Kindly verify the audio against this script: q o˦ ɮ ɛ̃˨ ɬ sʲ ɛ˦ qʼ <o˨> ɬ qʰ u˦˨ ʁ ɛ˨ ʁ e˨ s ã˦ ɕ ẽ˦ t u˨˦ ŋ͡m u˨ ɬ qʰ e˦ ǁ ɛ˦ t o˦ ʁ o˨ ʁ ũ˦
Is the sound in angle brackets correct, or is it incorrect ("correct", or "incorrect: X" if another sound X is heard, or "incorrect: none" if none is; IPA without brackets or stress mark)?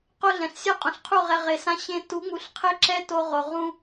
incorrect: õ˨